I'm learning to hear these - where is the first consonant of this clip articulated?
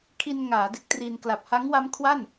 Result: velum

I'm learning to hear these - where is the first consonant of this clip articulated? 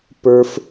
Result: lips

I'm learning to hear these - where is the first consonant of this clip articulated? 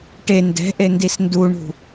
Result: retroflex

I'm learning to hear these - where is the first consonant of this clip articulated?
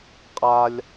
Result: uvula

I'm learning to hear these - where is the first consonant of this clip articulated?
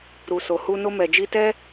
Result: tongue tip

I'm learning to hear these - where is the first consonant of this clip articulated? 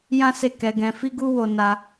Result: palate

